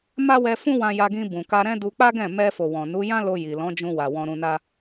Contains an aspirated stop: no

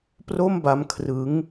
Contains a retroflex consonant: no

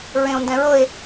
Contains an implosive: no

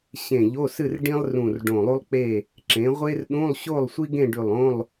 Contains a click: yes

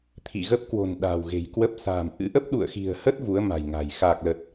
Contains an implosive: yes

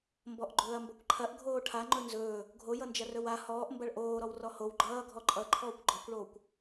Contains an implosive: no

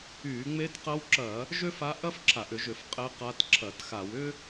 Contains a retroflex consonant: no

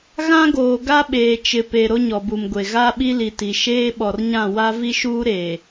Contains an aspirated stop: no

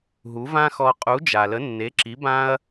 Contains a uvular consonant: yes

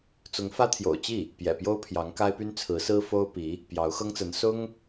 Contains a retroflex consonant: no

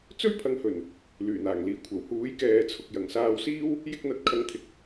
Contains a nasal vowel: no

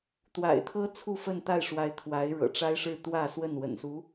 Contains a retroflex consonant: yes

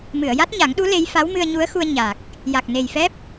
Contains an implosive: yes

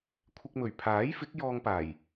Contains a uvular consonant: no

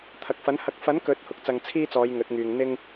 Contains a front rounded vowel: yes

